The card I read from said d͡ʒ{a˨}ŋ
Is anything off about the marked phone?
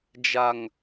no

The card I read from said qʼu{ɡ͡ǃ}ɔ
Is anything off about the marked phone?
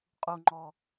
yes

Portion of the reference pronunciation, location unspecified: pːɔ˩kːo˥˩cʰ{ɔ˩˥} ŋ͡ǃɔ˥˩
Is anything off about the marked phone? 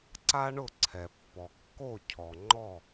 yes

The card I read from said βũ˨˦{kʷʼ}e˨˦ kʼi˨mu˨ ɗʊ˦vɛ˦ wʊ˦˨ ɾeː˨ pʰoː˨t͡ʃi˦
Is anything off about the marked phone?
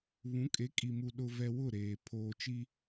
yes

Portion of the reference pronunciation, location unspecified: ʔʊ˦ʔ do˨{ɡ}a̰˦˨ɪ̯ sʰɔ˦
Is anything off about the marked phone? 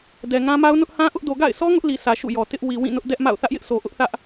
no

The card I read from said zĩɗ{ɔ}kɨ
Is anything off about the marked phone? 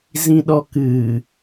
no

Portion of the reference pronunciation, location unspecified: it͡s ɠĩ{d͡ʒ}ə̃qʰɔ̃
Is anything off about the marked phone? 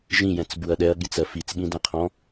yes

